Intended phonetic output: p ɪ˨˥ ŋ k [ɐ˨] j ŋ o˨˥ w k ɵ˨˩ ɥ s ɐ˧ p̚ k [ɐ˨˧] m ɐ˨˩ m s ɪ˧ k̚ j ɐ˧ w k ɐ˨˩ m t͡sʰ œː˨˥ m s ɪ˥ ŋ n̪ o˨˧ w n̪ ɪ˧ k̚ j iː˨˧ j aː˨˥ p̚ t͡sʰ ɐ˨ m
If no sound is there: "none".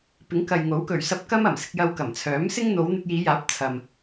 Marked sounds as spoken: ɐ˨, ɐ˥

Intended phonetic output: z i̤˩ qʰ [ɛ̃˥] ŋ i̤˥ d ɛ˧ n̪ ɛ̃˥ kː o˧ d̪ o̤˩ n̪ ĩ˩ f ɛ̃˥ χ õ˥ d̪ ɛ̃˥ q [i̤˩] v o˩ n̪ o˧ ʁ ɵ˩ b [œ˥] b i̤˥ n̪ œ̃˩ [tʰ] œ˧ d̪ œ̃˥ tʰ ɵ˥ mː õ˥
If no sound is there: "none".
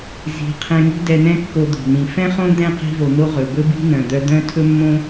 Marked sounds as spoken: ɛ̃˧, i̤˧, ɵ˥, d̪

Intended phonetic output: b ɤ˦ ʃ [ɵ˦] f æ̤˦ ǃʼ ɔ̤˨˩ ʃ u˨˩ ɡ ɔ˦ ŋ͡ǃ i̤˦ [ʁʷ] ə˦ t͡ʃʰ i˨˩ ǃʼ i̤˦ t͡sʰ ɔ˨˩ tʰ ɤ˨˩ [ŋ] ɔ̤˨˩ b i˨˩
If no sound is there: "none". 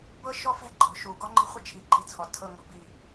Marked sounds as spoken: ɔ˦, χʷ, ŋ

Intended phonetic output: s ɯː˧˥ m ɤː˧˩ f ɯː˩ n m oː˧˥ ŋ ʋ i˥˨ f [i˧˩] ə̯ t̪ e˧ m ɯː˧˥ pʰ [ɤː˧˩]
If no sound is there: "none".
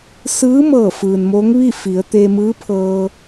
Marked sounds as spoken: i˩˧, ɤː˧

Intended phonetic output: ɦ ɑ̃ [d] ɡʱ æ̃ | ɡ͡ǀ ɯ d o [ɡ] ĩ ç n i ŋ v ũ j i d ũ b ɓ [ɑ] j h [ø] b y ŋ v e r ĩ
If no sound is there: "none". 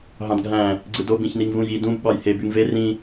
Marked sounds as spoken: d, b, ɑ, e

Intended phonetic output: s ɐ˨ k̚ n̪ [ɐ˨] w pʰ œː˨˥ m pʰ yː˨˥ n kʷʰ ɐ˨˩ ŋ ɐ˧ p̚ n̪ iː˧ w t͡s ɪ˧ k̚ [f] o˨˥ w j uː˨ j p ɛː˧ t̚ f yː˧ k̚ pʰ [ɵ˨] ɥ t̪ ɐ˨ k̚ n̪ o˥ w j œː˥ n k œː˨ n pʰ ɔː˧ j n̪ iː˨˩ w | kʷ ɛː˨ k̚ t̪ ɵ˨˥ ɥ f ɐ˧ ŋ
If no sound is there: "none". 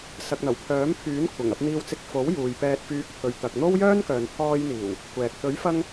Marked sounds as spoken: ɐ˨˩, f, ɵ˨

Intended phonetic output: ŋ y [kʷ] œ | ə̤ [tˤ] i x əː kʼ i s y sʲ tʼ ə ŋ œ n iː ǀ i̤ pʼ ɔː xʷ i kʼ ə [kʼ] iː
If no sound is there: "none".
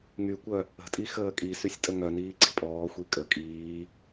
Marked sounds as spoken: kʷ, tʼ, kʼ

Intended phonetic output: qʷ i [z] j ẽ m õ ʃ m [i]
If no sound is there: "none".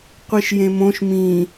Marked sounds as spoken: ʃ, ĩ

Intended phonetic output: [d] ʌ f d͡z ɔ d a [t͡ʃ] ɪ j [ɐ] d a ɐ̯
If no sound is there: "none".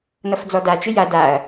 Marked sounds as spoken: n, t͡ʃ, a

